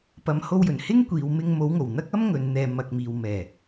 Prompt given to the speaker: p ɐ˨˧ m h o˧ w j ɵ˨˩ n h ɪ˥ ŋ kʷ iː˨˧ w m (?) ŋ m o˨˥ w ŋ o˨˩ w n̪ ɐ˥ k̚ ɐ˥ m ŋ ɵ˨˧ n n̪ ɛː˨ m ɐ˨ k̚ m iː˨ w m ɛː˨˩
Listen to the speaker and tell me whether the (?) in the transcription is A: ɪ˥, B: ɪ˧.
B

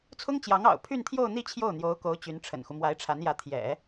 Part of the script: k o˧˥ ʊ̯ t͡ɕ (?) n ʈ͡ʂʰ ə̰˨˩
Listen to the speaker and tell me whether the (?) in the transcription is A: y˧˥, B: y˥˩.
A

